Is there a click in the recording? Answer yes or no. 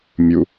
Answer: no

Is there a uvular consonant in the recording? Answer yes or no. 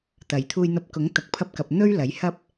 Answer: no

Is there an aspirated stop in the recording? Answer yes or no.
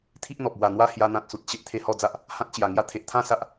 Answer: yes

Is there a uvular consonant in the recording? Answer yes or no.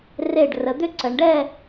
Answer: no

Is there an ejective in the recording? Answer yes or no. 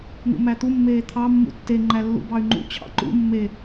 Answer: no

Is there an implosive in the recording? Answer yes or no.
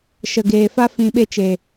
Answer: yes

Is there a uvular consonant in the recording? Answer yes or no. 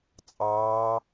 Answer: no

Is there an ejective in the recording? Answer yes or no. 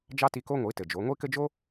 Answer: no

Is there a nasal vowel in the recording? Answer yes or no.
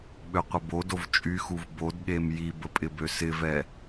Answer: no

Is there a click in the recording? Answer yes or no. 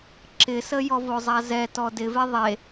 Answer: yes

